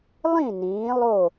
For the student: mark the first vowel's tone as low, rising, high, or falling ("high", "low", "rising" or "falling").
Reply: falling